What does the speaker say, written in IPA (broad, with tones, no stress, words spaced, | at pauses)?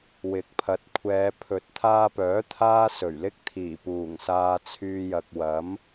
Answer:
wɪ˨˥k̚pʰɐ˨˥t̚kʷʰɛː˨˧ pʰɵ˨˥t̚t̪ʰaː˧pœː˨˥ t̪ʰaː˥sɵ˨˩ɥlɪ˥k̚t̪ʰiː˨˩ puː˨˩ŋsaː˧t͡sʰyː˧jɐ˨k̚ wɐ˨˥m